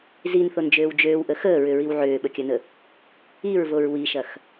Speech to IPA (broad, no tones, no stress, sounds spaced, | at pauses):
z i n θ o n d͡ʒ øː w d͡ʒ øː w ʔ ə x əː ɹ ʏ ɹ i w ʕ øː ɓ ə kʲ ɐ n ə | i ɹ v o ɹ w i ʃ ɐ x